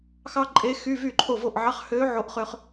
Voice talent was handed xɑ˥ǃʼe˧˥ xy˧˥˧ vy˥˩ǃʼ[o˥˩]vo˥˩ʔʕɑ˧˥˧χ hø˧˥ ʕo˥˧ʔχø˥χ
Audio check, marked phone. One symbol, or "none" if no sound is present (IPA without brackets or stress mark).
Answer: o˥˩